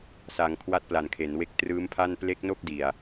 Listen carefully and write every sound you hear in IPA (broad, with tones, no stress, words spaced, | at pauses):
sa˩˦ŋ kʰwa˦˥t̚pla˨˩nkʰe˩˦nwe˦˥k̚ trɯː˦˥mpʰa˥˩n ple˦˥k̚no˥˩k̚di˨˩a̯